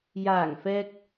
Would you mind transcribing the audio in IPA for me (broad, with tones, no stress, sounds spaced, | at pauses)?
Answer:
j aː˨˩ ŋ f ɛː˨ k̚